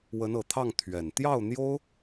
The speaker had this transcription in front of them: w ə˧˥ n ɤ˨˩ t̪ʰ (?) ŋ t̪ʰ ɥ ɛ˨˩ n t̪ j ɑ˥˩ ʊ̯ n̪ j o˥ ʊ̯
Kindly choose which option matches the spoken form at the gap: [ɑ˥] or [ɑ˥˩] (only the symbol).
ɑ˥˩